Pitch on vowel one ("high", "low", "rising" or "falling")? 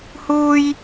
high